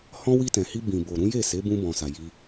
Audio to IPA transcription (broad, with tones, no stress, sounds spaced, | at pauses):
h ɔ̃˦ w i˧ t ɛ̃˨ h i˧ b ĩ˨ b o˨ ɾ ũ˨˦ j e˦˨ s e˨˦ b ũ˧ b ɔ̃˨ s a˨ j i˧